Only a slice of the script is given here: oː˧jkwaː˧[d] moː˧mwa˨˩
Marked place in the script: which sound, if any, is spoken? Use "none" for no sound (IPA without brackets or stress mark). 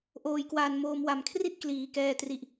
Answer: n